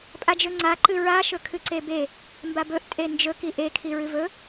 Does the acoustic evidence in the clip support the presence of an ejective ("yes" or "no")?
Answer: yes